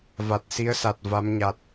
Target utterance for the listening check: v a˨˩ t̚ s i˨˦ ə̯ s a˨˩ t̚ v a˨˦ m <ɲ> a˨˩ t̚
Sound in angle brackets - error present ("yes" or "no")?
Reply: no